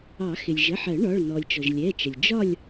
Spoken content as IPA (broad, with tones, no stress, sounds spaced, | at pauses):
ɑ˨˩˦ x ɪ˩ lʲ ʒ ə˩˧˩ ħ ɜ˨˩˦ ɳ ɒ˩˧˩ ɭ n ɔ˩ lʲ t͡ʃ ɔ˩ ʒ lʲ ɛ˩˧˩ t͡ʃ ə˩ lʲ d͡ʒ ɒ˥˨ lʲ